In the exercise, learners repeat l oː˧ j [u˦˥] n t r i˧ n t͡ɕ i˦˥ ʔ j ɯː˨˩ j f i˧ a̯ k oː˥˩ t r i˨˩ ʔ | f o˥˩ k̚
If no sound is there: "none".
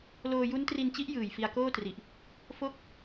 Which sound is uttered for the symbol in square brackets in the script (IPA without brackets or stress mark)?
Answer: u˦˥